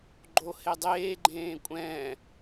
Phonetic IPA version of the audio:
ɡ͡ǃohe dˤeːɡ͡ǃẽː kʷʼɛ̃ː

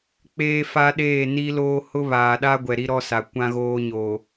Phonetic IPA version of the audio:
k͡peː˦fa˦ɗeː˦˨ ni˦loː˦ hʊ˦βaː˨ɗa˦ ɡʷɛ˨ɾi˦ɾɔ˦sa˨ kʷã˦ɣoː˦ ɲo˨

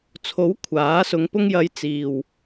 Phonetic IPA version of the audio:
t͡sʰo˨˥w kʷʰaː˨˥sʊ˨˧ŋ pʊ˧ŋjɐ˨˧j t͡siː˨w

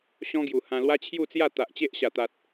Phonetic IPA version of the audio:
ɕɔ̃˦ɡju˨˩ hã˧ lwa˦t͡ɕʰju˥˧t͡sja˥˧ t̪a˨ʔt͡ɕe˦ʔɕa˨˩t̪a˨t̚

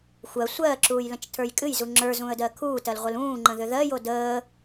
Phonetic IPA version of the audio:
xʷɜ sʷɜːǁuːjlə̃t͡ʃtʰə˞j kʼɨjzu ŋ͡ǁə˞zũə̯dɜ kʰuːtɜlʁʷɨl ũːŋ͡ǃə̃ðʏ ðɜjo dəː

